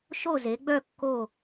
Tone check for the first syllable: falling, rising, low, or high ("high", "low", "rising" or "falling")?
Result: falling